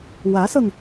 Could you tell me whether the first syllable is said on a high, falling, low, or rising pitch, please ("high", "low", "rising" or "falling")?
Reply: rising